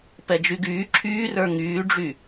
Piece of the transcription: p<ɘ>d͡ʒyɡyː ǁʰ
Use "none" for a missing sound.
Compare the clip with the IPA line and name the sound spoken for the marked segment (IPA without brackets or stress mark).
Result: ɛ